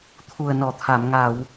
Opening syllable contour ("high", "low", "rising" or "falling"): low